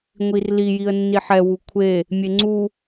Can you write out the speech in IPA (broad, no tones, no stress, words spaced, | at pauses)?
ŋʷirli jiə̯nːiħɛ wukʷʰe | mʲeŋ͡ǀu